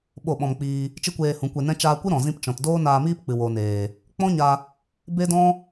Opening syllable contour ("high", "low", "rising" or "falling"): falling